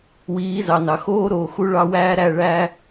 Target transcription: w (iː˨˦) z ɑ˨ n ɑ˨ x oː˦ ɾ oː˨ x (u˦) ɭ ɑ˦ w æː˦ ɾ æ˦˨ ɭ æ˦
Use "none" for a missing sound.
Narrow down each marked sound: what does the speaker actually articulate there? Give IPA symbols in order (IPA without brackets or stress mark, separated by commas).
iː˨˦, u˦